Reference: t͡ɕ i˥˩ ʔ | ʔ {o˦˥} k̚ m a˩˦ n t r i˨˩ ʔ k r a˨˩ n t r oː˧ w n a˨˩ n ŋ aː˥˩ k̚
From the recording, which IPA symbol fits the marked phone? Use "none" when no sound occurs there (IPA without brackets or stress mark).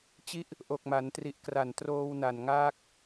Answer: o˨˩